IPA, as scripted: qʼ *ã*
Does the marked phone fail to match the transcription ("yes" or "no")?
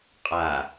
yes